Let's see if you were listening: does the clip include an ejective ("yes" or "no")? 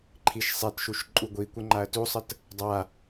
yes